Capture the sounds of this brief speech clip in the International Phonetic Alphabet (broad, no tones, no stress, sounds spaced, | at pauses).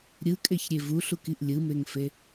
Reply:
ɾʲ ɯ kʼ e ç ɾʲ e v u ɬ u k i ʔ lʲ ɯ m e ŋ f e